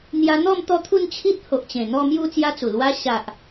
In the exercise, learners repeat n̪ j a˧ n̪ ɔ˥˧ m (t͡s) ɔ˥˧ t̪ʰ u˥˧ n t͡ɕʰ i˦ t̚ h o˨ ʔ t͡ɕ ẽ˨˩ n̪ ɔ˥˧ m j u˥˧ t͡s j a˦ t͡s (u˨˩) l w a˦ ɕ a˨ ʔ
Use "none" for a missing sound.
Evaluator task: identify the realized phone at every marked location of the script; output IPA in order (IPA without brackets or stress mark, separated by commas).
t̪, u˨˩